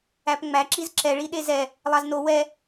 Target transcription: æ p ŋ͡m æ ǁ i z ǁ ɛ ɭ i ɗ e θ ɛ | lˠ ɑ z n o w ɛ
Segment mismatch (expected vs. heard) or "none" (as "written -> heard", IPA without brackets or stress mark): θ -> z